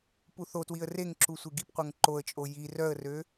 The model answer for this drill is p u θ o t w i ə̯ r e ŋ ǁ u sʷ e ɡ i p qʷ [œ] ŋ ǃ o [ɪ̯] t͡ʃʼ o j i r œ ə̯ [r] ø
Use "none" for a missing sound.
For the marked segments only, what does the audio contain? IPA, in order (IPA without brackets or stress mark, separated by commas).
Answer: œ, ə̯, r